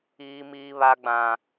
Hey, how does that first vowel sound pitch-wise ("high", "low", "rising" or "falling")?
high